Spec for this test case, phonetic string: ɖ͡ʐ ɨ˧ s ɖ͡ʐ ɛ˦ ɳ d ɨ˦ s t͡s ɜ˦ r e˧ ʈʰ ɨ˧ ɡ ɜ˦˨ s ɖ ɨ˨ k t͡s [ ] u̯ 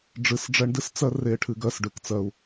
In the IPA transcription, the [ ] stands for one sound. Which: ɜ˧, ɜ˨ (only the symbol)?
ɜ˧